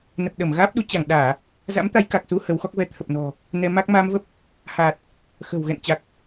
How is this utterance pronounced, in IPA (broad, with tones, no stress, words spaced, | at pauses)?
nə˨˩p̚ɗə˧˩m ɣaː˦˥p̚ɗu˨˦ t͡ɕa˧˩ŋ ɗaː˧˩˨ | za̰˧˥mt̪a˨˦j ka˨˩k̚su˧ hə˨˦wxɔ˦˥k̚ vɛ˨˦t̪ʰə˨˩p̚nɔ̤˨˩ | nɛ˧ma˦˥k̚ maː˧mvə˦˥p̚ | haː˨˩t̚ | xə̤˨˩wɣɛ̰˧˨nt͡ɕa˨˩k̚